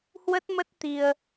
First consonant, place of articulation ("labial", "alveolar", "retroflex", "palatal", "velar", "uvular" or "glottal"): glottal